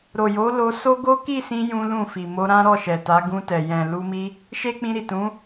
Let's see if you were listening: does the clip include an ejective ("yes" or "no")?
no